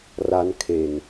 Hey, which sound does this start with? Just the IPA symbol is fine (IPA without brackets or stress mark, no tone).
r